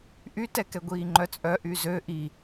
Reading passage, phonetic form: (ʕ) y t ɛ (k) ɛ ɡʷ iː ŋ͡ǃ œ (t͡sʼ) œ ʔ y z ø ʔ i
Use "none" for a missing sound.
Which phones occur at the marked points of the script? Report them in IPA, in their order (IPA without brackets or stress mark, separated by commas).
ʔ, k, t͡sʼ